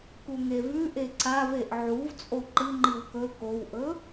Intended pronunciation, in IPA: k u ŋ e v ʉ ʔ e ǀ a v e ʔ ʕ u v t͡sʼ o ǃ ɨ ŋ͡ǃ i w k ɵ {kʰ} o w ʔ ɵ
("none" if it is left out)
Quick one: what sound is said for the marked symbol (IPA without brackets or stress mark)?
k